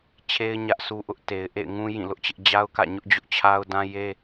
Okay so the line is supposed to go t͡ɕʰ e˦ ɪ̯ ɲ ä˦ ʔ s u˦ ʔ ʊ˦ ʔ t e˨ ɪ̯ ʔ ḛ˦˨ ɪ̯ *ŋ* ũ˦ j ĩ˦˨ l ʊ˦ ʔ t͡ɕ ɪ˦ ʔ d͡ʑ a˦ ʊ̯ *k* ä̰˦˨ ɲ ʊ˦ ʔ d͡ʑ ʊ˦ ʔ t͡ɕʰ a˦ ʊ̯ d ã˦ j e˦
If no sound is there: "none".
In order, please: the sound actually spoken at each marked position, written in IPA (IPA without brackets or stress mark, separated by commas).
ŋ, k